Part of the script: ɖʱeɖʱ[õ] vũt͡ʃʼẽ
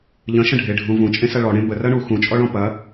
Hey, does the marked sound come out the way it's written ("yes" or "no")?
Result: no